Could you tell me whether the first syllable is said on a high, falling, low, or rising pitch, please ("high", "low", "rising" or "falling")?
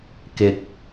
rising